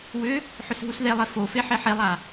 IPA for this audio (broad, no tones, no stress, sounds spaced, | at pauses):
w ʏ | ħ ʏ s ɦ u s ð e lˠ e f o f e ħ e ħ e lˠ a